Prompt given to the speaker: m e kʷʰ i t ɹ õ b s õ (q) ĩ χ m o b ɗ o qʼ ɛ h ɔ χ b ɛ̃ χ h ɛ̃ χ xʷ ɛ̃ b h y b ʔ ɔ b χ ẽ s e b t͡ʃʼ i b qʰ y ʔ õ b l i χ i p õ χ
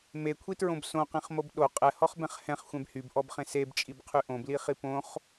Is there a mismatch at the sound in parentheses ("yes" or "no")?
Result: no